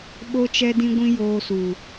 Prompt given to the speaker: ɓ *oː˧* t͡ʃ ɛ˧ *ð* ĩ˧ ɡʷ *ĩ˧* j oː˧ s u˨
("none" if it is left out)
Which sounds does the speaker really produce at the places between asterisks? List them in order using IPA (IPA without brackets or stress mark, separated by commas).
o˧, d, ĩ˧